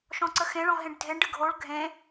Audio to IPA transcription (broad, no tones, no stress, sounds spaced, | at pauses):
ʃ ɔ̃ ǀ ə x ẽ ɭ ɔ̃ ɦ ẽ ɖ dʱ e ɳ ɖ ɨ ɡʱ o ɭ ɡʱ ẽ